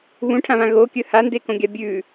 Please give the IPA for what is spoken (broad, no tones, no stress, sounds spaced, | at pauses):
β ũ ʈʰ ã β ã ɣ o kʲ ɵ h a n d e k õ ɡʲ a bʲ ʉ